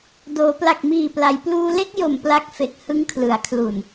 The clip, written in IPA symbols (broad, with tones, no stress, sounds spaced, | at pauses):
d oː˩˦ p l a˨˩ k̚ m iː˨˩ p l a˩˦ j p l uː˧ l e˥˩ k̚ j o˨˩ m p l a˦˥ k̚ f e˨˩ k̚ h ɯ˦˥ ŋ kʰ l ɯ˩˦ a̯ kʰ l u˨˩ n